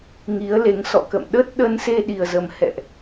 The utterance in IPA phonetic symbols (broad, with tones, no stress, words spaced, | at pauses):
ŋi˨˦ə̯le˨˦ŋ sɔ̰˧˨ kə̰˧˨mɗə˦˥t̚ ɗə˧nse˧ɗi˨˩ə̯zə˨˩m hɛ̰˧˨ʔ